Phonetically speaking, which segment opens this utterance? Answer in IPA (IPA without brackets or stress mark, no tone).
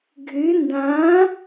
ɡʱ